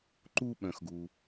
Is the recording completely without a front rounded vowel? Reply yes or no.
no